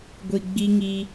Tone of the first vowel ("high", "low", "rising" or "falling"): low